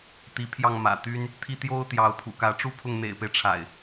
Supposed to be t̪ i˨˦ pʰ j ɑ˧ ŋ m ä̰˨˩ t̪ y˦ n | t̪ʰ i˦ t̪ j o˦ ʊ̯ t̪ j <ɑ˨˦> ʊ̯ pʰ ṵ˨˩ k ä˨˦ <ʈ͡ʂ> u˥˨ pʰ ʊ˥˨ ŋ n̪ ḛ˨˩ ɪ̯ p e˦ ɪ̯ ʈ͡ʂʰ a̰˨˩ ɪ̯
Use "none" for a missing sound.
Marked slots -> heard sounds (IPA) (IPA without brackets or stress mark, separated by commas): ɑ˨˦, ʈ͡ʂ